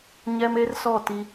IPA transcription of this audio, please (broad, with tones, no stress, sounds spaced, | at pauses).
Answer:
ɲ ɛ˦ m e˦ r s ɔ˦˨ t i˦